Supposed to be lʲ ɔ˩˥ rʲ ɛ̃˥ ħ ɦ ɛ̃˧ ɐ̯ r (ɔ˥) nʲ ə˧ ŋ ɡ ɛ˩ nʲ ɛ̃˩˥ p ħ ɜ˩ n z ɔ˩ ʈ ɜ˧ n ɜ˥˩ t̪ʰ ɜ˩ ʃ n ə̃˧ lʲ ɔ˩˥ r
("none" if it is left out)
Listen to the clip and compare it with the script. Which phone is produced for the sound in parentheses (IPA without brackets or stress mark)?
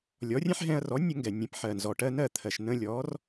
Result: ɔ˩˥